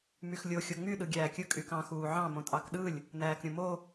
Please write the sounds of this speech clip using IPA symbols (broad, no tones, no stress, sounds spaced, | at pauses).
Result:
m y x lʲ o xʲ o ŋ͡m y ɗ ɯ ɡʲ æː kʲ ɯ kʼ y k ɑ̃ x uː ʕ ɑ̃ m õ tʼ ɑ k ɗ ɯ lʲ | n æː k ɾʲ ũ m o